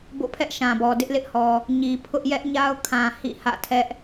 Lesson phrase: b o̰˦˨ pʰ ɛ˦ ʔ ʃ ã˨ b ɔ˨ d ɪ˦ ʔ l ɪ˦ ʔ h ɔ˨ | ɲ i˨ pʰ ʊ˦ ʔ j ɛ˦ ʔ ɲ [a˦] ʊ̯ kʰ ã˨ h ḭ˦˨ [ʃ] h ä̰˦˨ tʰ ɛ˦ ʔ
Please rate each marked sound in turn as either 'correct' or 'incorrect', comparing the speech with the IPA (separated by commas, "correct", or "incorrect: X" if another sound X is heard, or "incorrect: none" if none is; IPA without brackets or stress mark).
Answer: correct, incorrect: none